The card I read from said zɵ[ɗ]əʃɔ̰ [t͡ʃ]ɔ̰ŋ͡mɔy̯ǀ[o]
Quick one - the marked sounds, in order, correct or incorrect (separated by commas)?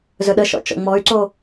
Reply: correct, correct, correct